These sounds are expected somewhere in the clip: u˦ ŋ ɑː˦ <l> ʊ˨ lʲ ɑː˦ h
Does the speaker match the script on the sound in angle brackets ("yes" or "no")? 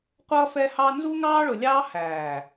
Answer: no